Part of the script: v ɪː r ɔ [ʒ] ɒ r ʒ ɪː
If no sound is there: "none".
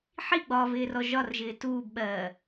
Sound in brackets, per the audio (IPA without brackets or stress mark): ʒ